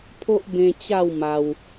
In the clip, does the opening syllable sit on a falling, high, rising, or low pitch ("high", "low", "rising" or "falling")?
high